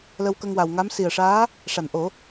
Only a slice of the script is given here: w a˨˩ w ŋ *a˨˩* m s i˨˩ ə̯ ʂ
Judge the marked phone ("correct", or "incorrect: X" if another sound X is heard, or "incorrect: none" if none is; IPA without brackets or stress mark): incorrect: a˧˥